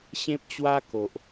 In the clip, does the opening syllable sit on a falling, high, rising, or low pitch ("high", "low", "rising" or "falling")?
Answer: high